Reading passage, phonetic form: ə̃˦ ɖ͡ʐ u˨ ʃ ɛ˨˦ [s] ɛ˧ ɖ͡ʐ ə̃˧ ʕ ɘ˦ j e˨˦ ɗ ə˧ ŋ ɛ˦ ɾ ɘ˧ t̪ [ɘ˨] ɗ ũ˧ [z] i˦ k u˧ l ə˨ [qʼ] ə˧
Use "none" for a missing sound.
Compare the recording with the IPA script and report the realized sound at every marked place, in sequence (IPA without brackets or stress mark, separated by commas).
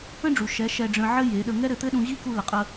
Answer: ʃ, ɘ˦, ʑ, qʼ